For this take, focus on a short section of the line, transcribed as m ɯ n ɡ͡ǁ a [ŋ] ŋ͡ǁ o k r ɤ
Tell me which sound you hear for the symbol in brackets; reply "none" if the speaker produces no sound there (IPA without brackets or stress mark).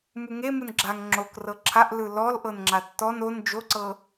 ŋ